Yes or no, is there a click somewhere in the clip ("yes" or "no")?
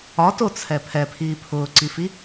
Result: yes